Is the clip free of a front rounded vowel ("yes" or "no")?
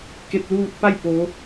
yes